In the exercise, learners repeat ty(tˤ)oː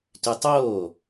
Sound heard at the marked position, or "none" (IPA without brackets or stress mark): tˤ